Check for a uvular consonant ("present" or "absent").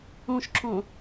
absent